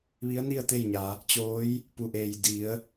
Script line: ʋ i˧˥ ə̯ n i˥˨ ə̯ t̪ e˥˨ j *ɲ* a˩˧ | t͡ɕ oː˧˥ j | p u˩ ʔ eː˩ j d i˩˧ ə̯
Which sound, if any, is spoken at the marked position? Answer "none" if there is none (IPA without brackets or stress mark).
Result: ɲ